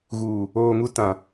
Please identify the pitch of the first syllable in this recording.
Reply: low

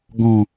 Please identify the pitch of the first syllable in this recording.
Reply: low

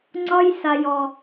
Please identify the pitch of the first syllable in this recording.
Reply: high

